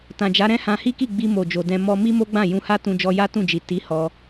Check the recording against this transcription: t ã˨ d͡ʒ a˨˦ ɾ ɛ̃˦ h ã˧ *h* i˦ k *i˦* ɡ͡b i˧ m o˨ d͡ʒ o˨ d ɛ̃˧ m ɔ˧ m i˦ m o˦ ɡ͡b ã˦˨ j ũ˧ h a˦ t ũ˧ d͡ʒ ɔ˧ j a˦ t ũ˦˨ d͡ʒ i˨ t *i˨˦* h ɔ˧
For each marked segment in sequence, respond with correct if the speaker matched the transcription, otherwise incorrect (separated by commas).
correct, incorrect, correct